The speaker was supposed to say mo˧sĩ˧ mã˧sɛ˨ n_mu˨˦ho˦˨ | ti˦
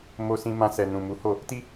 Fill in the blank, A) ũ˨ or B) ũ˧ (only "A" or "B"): A